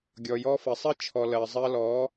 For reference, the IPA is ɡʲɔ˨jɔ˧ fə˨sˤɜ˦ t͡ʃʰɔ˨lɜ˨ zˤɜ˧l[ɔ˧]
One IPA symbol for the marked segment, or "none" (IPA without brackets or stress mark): ɔ˨˦